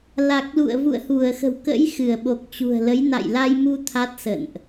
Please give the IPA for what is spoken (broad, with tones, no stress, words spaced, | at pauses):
la˨˩k̚lṵ˧˨ə̯ vṵ˧˨ə̯hu˧˩ə̯xə̤˨˩wkə̰˧˥j xɨ˧˩ə̯ɓo˨˩k̚t͡ɕṳ˨˩ə̯lə˨˦j na̰˧˨jla˧jmu˧ t̪ʰa˦˥t̚sə̰˧˨nʔ